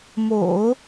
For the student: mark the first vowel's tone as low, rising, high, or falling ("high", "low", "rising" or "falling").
low